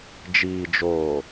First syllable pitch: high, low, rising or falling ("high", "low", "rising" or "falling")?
low